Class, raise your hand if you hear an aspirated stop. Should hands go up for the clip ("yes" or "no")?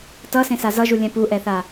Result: no